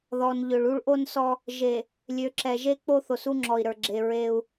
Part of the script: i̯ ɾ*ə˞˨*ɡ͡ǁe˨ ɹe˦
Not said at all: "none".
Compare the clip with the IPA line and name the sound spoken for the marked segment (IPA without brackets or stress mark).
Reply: ə˞˨